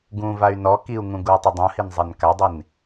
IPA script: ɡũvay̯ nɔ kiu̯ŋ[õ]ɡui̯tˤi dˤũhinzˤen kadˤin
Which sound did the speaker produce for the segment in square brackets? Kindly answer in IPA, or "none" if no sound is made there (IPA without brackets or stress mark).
ũ